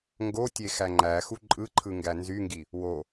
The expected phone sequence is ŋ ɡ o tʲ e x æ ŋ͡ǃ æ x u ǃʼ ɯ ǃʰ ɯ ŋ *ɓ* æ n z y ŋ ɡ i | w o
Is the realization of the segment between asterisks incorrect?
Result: yes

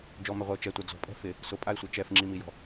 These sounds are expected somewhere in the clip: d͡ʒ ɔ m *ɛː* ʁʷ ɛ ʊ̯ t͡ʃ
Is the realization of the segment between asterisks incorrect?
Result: yes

